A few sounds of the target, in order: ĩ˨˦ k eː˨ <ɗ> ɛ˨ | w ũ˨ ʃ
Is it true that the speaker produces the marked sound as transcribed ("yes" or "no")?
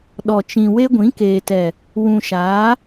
no